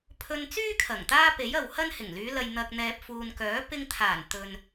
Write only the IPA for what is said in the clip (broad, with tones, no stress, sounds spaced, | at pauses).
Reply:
pʰ ɵ˧ n t͡s yː˥ kʰ ɐ˨˩ ŋ t̪ aː˥ p e˨˥ j ɐ˨ w h ɐ˥ n h ɪ˨˩ ŋ l yː˨˧ l ɐ˨ j n̪ ɐ˨ k̚ n̪ ɛː˨ p̚ f uː˨ n k œː˨˥ p ɪ˧ ŋ t̪ʰ aː˨˩ n t̪ ɵ˨ n